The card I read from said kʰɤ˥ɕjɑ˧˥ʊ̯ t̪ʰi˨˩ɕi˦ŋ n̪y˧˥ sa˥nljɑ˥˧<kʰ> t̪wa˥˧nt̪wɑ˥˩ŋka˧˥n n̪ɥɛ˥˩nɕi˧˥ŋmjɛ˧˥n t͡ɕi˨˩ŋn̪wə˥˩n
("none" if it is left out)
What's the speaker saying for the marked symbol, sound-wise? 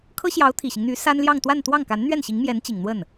ŋ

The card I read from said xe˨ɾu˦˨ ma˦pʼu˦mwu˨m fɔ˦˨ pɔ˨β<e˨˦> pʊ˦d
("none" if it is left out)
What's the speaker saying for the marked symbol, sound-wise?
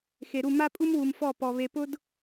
e˨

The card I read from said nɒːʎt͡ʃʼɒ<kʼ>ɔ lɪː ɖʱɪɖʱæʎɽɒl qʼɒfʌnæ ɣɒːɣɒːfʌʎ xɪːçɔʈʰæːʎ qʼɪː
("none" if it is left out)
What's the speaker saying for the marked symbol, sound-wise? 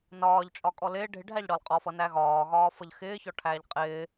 kʼ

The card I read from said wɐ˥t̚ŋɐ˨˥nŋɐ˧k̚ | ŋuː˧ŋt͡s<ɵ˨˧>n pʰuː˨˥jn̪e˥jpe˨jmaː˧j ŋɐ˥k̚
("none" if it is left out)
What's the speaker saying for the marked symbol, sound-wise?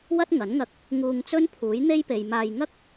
ɵ˥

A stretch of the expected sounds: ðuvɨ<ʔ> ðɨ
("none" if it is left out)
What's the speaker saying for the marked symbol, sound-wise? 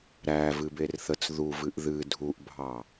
ʔ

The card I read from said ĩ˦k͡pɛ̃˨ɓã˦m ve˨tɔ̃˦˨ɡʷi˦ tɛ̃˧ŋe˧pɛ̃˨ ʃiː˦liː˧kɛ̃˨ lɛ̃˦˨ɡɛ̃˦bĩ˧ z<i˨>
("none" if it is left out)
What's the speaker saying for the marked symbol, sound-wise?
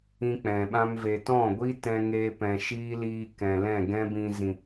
ĩ˨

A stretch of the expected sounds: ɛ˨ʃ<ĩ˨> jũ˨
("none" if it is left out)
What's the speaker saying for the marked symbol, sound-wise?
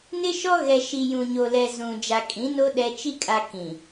i˨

